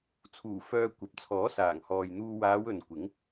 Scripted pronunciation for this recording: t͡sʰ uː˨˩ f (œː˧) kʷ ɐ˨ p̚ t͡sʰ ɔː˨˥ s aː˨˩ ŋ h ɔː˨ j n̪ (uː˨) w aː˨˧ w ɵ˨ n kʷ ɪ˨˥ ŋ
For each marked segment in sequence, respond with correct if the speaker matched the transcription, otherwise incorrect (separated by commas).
correct, incorrect